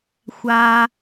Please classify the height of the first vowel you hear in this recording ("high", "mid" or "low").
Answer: low